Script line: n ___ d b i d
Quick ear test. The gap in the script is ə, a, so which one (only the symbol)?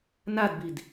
a